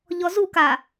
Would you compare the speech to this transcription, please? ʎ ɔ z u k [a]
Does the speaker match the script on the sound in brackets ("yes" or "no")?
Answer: yes